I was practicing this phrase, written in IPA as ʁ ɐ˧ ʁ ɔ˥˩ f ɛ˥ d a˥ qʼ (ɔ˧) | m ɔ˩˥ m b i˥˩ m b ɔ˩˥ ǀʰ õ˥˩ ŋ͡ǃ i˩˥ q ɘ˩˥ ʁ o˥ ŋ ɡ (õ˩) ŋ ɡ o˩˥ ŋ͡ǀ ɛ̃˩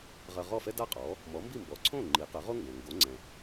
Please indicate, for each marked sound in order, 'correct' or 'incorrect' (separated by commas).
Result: incorrect, correct